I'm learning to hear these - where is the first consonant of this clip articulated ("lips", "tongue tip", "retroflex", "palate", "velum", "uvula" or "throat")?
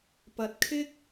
lips